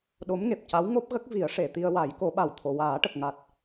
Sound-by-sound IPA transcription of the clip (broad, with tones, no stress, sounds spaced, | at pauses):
ɗ o˧˥ m ŋ e˨˩ p̚ c a˧˥ w ŋ o˦˥ p̚ ɣ ə˦˥ k̚ v i˨˩˦ ə̯ ʂ e˨˩˨ t̪ i˧ ə̯ w a˨˩˦ j k o˨˩˦ ɓ a˨˩ w t̪ʰ o˨˩˨ w aː˨˩˦ ʈ ə˨˩ k̚ ŋ a˨˩ t̚